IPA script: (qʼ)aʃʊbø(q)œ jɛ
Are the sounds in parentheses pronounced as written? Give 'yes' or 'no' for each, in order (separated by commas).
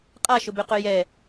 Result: yes, yes